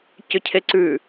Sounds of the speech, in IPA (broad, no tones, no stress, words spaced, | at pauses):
cʏcʰeǀʉ